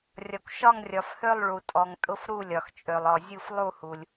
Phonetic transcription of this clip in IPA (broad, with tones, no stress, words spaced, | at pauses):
rʲɒ˩kʷʃɒ˦˨ŋrʲɒ˩fhø˦˨lˠ ɭu˩tʼɔ˩ŋ tʼʊ˦˨fɾu˦˨ lʲɒ˩xt͡ʃʼø˩lˠɔ˩ zʲu˦˨f lˠu˦˨hu˩lʲ